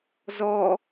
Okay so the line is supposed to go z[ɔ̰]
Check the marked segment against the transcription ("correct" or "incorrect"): incorrect